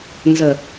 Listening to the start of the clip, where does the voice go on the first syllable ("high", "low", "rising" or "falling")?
low